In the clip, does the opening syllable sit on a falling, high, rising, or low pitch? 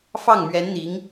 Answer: falling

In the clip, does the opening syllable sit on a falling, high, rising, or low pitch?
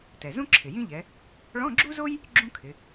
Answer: low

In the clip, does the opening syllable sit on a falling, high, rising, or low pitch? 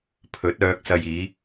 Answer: rising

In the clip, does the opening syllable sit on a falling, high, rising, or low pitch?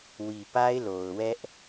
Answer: low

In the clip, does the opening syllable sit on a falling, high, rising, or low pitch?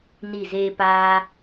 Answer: falling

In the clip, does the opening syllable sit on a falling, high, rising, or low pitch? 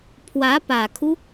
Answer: rising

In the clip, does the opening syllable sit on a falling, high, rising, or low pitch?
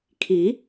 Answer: rising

